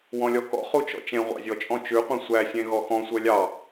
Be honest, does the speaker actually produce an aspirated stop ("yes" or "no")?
no